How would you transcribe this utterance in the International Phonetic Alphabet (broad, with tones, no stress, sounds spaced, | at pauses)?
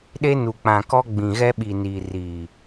ɗ e˦ n u˨ k͡p ã˨ k ɔ˦ ɡ͡b ĩ˨ ɣ ɛ˦ ɓ iː˨ n iː˨ r iː˨